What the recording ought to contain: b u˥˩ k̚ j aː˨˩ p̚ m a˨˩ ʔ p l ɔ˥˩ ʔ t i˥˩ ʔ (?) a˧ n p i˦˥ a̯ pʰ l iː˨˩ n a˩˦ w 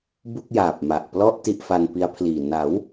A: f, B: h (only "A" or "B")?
A